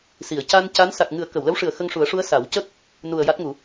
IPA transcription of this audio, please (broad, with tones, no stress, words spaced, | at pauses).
si˨˩˨ə̯ca˧nca˧˥n sa˨˩k̚ŋɨ˨˩˦ə̯ kə˨˩˨wlə˧˥wʂɨ˨˩ə̯ xə˧ŋʂu˨˩˦ə̯ʂu˧˥ə̯ sa˨˩˦wcə˦˥k̚ | nu˨˩ə̯ ja˦˥t̚ŋu˨˩˦